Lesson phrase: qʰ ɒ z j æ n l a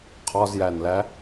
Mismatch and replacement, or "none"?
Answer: a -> æ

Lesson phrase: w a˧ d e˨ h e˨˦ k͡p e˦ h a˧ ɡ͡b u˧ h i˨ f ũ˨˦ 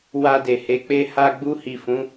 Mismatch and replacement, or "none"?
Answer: none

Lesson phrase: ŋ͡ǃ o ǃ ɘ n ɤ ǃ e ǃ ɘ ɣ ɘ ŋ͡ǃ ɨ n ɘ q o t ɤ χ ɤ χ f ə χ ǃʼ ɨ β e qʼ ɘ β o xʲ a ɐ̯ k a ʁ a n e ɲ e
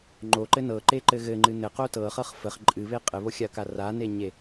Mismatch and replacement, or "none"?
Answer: ʁ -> r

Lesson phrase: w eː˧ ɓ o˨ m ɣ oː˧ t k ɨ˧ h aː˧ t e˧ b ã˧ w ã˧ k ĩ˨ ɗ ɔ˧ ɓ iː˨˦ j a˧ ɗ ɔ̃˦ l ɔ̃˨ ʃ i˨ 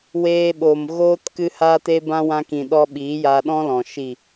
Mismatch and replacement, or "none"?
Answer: none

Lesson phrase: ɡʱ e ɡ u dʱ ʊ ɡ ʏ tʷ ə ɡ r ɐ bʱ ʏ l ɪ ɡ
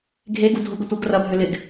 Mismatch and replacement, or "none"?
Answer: none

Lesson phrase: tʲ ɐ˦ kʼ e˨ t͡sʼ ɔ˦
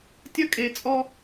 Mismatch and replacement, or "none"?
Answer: none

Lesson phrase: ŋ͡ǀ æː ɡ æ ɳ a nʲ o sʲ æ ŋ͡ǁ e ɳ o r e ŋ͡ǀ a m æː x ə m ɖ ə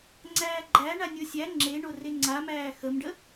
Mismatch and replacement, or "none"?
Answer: ɡ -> ɡ͡ǃ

